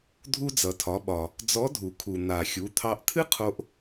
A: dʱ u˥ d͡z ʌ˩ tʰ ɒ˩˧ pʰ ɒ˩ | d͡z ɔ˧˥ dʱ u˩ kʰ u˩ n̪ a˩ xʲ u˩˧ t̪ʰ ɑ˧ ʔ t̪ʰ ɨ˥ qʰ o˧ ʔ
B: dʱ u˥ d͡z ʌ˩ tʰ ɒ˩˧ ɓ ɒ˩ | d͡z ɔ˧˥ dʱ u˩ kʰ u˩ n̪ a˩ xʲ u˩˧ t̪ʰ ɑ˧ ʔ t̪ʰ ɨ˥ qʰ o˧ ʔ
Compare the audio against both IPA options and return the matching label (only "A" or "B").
B